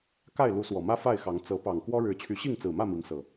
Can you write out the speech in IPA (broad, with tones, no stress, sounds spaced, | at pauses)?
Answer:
k a˥˨ ɪ̯ l u˨˦ s w ɔ˨˩ m ä˦ f a˥˨ ɪ̯ x ɑ˨˦ ŋ t͡s ɤ˨˦ p ɑ˨˩ ŋ k w ɔ˦ ɻ ɻ̩˨˦ t͡ɕʰ y˨˦ ɕ i˥˨ ŋ t͡s ɹ̩˨˩ m ä˥˨ m i˨˦ ŋ s ɤ˨˩